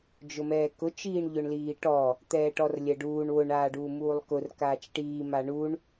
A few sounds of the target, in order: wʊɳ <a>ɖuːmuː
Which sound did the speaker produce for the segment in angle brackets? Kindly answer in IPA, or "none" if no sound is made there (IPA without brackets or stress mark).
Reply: aː